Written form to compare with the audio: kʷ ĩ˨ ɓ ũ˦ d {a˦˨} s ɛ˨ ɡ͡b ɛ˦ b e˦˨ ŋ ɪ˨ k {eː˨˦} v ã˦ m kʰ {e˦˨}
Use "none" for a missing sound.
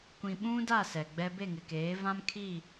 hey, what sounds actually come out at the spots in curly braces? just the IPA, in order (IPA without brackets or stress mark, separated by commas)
a˦˨, eː˨˦, i˦˨